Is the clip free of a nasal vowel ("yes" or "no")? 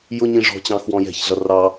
no